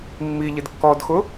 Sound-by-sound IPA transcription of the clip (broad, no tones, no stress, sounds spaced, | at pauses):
mː i ʎ ɪ d kː ɔ d x ʊ